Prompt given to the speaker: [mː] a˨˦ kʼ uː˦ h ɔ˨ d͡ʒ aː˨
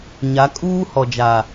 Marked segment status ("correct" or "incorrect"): incorrect